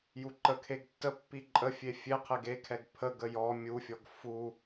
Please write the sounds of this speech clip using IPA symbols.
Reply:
juǃəkʰeɡ tːəpːi ǃʼəfʲe fʲe qʰeɡekʰɛɡ pʰəɡə jɔ mʲufʲɔɡ fu

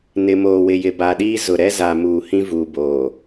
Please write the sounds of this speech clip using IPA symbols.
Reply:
nɪ˨moː˨wɪ˨jɪ˨ ba˨ɗiː˦ zʊ˨ɾɛ˦ za˨muː˨ hĩ˦vuː˨boː˨

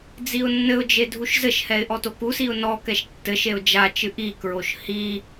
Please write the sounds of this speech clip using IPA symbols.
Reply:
d͡ziʊ̯nːɘʊ̯d͡ʒe dʱuʃzɘʃhɛɪ̯ ʔɔtokusiʊ̯ nɔkɛʃ tːɘʃeʊ̯ d͡ʒat͡ʃɨ ʔikɹoʃ hi

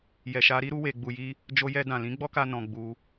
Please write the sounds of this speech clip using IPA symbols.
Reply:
jɛ˨ʃa˧ɾi˦ ɾu˧we˨ɡ͡bu˨ji˧ | d͡ʒo˧jɛ˧ dã˨lĩ˨˦ɡ͡bɔ˦ka˧ nɔ̃˧ɡ͡bu˧

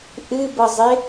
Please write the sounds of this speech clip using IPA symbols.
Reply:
ʔɨbɤzˤɪ

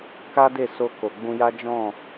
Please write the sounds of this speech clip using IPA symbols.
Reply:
ka˦de˦˨ so˧ ko˨ɡ͡bũ˧ja˦ d͡ʒɔ̃˦˨

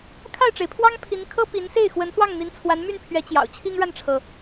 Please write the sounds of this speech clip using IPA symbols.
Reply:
kʰa˥˩ɪ̯ʈ͡ʂe˩ɪ̯pʰwɑ˥ŋ pʰi˧˥nkʰɤ˥ pi˧˥nse˥˩ɪ̯ xwə˧˥nswɑ˥˩ŋn̪i˧˥n t͡sʰwa˧˥nmy˥˩npʰɥɛ˧˥ t͡ɕjɑ̰˨˩ʊ̯t͡ɕʰi˥ŋɻa˥˩nʈ͡ʂʰɤ˩

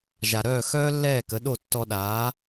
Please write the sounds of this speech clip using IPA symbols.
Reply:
ʒa˩ɾœː˥˩xœː˥ lːɛː˥˩kə˩˥ɗo˥˩ tːɔ˧ɗaː˩˥

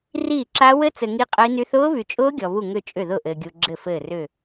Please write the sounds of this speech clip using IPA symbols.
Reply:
riː˥˩ǁa˦˥ wɘ˦˥t͡sɘ˨ ŋi˦˥qʼə˦˥i̯ny˦˥θ ʊː˦˥βy˨t͡ʃʼʊː˦˥ ɡʲɔ˨βu˥˩ ŋʏ˥˩t͡ʃʼʏ˥˩ðʊ˥˩ ʔɘː˨ɡʲu˨ɡ͡ǁɘ˥˩ fɘː˥˩rʏ˥˩

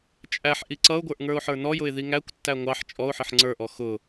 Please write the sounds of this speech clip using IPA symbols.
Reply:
t͡ʃʼæħ ʔiǀʌʊ̯ɡʷə˞ʔ ŋə˞ʊ̯ħə˞nɔjʊɪ̯ ðiŋækʷtːæ ŋʷɑħ t͡ʃʼɔʊ̯ħɪħ ŋ͡ǀə˞ʔɔ xʊ

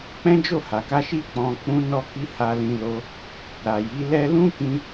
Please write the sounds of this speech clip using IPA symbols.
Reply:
k͡pɛ̃˦d͡ʒo˦˨ha˨ka˧ ʃi˦k͡pɔ̃˧ k͡pũ˧nɔ˧ki˧ ha˧lĩ˧lo˧ | ɾa˨ji˨˦lɛ˦ lũ˦kĩ˧

